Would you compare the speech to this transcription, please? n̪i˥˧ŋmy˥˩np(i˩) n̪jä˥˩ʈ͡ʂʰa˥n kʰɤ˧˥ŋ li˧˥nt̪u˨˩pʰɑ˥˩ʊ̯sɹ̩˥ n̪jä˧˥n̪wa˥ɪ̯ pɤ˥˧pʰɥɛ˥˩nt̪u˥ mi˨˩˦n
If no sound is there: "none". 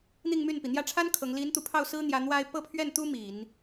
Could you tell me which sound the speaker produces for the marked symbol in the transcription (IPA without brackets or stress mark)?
i˩